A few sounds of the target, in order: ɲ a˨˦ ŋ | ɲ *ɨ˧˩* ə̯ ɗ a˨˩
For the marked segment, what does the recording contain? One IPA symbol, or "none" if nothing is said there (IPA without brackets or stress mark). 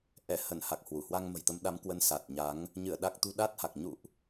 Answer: ɨ˧˩